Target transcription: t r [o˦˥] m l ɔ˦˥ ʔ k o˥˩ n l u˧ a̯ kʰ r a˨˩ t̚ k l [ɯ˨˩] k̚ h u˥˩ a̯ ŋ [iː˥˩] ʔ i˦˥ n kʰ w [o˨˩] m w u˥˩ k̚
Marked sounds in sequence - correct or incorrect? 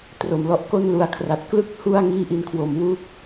incorrect: o˨˩, incorrect: ɯ˥˩, correct, correct

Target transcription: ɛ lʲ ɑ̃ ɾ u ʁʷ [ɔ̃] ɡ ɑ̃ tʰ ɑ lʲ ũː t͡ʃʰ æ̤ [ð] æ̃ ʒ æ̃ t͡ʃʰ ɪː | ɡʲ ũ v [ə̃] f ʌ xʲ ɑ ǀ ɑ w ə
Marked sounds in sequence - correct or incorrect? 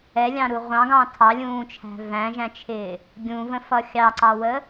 incorrect: ɑ̃, incorrect: v, correct

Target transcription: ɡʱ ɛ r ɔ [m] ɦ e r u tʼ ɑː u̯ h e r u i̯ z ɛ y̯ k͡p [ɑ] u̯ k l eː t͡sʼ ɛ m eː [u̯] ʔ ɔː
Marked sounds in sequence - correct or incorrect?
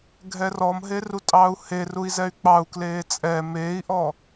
correct, correct, incorrect: i̯

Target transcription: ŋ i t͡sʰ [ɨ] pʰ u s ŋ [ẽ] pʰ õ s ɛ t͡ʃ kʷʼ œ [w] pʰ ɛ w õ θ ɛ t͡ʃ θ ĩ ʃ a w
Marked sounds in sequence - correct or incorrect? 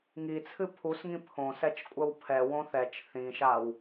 correct, incorrect: ĩ, correct

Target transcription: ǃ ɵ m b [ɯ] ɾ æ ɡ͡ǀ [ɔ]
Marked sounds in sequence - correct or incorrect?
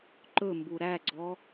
incorrect: u, correct

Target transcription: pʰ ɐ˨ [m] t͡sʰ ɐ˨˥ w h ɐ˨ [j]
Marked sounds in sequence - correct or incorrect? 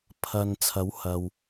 incorrect: n, incorrect: w

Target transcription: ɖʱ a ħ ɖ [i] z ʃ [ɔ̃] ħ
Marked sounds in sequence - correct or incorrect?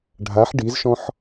correct, correct

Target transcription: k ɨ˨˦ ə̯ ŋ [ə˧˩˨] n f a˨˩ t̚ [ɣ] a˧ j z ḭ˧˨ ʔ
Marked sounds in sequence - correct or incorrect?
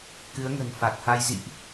incorrect: ə̤˨˩, incorrect: h

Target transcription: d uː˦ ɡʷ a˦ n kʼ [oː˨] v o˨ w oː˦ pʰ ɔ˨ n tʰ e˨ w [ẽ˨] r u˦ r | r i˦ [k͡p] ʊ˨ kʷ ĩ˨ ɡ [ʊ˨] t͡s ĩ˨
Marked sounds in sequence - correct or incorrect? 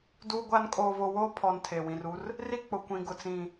correct, incorrect: ĩ˨, correct, correct

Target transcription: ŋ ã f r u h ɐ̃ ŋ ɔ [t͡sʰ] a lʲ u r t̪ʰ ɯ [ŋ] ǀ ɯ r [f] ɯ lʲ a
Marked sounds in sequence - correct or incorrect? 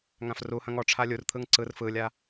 incorrect: ʈ͡ʂʰ, correct, correct

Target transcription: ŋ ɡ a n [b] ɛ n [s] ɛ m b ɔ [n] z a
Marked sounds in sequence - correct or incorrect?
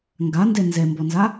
incorrect: d, incorrect: z, correct

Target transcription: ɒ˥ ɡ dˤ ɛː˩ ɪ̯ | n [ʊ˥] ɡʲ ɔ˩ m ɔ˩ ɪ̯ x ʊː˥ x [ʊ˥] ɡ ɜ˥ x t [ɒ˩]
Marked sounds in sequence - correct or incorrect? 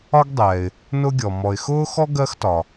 correct, incorrect: ɔ˥, correct

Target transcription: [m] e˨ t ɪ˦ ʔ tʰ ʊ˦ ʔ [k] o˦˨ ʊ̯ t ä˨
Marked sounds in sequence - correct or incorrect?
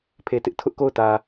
incorrect: pʰ, correct

